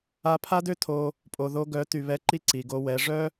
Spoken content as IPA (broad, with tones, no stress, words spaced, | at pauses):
a˧pʰa˦dø˦ tʰo˧ | pʼo˨ðo˧ɡœ˨˦ ty˨βɛ˧ǃi˦ ǀi˨ɡo˧wɛ˨˦ ʐœ˦